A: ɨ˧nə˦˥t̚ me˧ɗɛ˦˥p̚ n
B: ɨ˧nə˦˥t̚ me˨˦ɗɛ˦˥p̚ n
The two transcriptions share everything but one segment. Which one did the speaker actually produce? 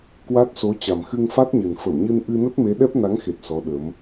B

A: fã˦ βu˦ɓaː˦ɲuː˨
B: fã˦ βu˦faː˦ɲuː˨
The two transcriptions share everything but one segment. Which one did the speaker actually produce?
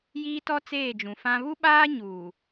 A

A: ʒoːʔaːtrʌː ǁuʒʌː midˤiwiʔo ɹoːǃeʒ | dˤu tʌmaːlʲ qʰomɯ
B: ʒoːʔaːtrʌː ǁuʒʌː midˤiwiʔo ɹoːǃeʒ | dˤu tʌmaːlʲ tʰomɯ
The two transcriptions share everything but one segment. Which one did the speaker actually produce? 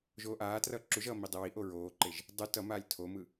B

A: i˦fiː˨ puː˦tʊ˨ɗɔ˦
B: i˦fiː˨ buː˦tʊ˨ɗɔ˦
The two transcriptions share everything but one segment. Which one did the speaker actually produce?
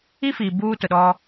B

